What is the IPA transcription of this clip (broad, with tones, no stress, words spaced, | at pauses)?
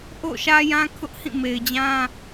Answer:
ʔo̰˦˨ʃä˦jã˦ kʰʊ˦ʔhĩ˦˨ me˨ɪ̯d͡ʑã˦